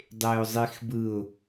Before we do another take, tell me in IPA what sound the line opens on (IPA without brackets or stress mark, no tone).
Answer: dˤ